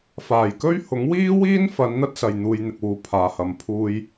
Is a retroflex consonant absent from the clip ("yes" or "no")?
yes